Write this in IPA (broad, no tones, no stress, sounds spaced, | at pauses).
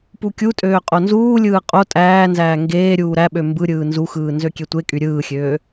p u kʲ u tʼ øː qʼ o n z uː lʲ ɯː qʼ o tʼ æː n z æː ŋ ɡ eː ɾʲ uː ɾ æ ɓ ø m b ɯ ɾʲ ɯː n z u x ɯː n z ø kʲ e tʷ e kʼ y ɾʲ ɯː xʲ øː